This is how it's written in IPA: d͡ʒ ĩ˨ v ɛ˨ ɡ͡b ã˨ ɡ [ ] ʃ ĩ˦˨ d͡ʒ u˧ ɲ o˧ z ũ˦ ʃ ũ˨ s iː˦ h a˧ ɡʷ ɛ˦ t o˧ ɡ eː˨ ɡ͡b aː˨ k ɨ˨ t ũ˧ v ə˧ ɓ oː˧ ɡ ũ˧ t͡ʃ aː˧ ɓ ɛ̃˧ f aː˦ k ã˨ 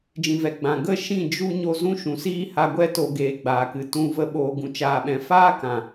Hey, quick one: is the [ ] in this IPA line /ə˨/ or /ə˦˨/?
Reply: ə˦˨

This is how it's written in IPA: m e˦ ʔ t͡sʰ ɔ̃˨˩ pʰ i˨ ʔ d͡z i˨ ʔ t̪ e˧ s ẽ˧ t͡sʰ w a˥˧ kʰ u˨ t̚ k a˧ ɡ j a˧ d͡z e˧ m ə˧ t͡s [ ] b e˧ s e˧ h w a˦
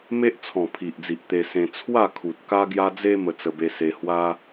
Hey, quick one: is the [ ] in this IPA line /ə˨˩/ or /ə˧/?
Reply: ə˧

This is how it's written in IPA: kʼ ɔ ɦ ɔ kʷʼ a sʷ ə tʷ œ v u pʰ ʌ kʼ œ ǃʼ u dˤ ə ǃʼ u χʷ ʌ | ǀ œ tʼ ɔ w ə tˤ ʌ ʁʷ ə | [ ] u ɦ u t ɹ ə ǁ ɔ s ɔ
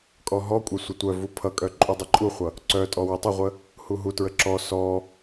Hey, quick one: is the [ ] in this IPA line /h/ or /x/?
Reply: h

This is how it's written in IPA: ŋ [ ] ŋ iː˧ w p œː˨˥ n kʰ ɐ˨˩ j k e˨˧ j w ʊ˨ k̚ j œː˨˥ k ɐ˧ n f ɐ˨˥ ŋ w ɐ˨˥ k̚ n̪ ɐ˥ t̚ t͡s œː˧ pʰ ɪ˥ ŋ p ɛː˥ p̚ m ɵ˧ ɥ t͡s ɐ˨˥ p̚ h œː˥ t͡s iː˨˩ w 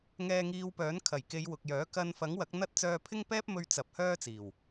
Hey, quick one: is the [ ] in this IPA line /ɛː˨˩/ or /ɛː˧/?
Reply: ɛː˧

